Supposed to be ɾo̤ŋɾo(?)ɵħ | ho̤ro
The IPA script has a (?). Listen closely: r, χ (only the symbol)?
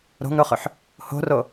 χ